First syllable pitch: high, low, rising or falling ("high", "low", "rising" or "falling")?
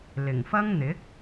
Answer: low